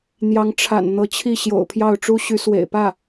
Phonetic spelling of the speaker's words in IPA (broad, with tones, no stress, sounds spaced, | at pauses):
n̪ j ɑ˧˥ ŋ ʈ͡ʂʰ a̰˨˩ n n̪ ɤ˧˥ t͡ɕʰ i˥˩ ɕ j o̰˨˩ ʊ̯ pʰ j ɑ˥˩ ʊ̯ ʈ͡ʂ u˥ ɕ y˧˥ s w ḛ˨˩ ɪ̯ p ä˥˩